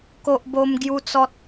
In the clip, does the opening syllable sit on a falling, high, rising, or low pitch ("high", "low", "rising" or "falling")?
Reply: high